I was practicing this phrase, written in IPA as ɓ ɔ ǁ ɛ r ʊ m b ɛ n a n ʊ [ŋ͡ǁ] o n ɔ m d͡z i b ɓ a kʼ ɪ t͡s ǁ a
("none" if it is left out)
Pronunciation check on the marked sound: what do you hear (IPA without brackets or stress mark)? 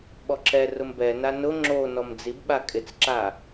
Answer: ŋ͡ǁ